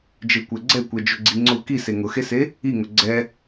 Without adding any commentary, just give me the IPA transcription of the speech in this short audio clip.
d͡ʒ e kʷ ɛ ɡ͡ǀ ɛ kʷ ɛ d͡ʒ ʊ ɡ͡ǀ i ŋ͡ǀ ʊ k i s e ŋ ʊ x e s e | i ŋ ʊ ɡ͡ǀ ɛ

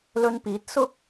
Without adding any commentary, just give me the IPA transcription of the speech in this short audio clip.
l ɵ˧ n p iː˨˥ t̚ s ʊ˥ k̚

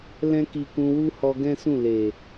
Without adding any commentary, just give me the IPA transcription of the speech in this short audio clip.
l ɛ̃˦ k i˧ k ũ˧ w u˦ h ɔ˧ ɡ ɛ̃˦ s ũ˦˨ l e˨

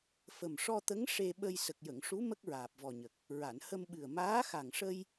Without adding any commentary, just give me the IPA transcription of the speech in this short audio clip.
f ə˨˩ m ʂ ɔ˧ t̪ ə˧˥ ŋ ʂ e˧ ɓ ə˧ j s ə˨˩ k̚ j ə˨˩˨ ŋ ʂ u˧˥ m ə˦˥ k̚ ɹ aː˨˩ p̚ v ɔ˨˩ ɲ ə˨˩ k̚ | ɹ a˨˩˨ n h ə˧ m ɓ ɨ˨˩ ə̯ m aː˧˥ x a˨˩ ŋ ʂ ə˧ j

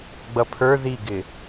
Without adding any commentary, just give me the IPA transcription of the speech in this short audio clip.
ɡ͡b ʌ pʰ ə˞ ð i ɡ ɪ

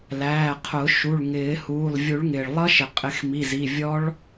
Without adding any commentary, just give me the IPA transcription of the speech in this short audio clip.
l æː˩˧˩ qʰ ʊ˨˩˦ ʃ u˩˧˩ ɭ ŋ ɪː˨˩˦ h uː˩˧˩ lˠ vʲ u˨˩˦ ɭ ŋ ɪː˩ ɭ lˠ ʌ˦˥ ʃ ɪ˩ qʼ ɪ˨˩˦ x m i˩˧˩ z i˩˧˩ vʲ ɔ˦˥ ɭ

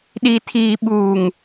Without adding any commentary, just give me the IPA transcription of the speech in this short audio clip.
ɗ i˨ tʰ iː˨ ɓ uː˨ ŋ

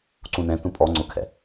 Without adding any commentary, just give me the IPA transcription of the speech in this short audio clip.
ǀ ũ n ɛ̃ t ũ pʼ ɔ ŋ͡ǀ ʊ kʰ ɛ̰

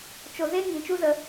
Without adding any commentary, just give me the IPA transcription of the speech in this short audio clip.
t͡ʃ o˧ z e˦ ŋ ĩ˨˦ t͡ʃ u˦ z ə˧

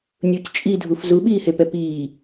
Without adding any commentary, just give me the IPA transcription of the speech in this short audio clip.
nʲ u c t͡ʃʼ i dʱ u f z u ɓ iː h e p ɛ p iː

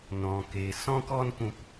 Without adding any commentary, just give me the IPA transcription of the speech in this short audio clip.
n ɔ̃˨ k e˨ s ɔ̃˦ k ɔ˦ n k ũ˧ p

